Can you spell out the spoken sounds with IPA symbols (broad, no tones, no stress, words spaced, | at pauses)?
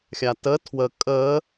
xʲatə tʰwə kʼə